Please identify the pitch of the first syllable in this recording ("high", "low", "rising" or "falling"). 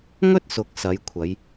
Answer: high